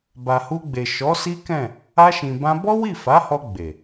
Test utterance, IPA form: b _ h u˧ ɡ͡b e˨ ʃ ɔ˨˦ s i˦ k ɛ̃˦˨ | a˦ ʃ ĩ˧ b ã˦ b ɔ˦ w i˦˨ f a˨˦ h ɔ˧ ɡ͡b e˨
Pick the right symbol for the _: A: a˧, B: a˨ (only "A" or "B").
B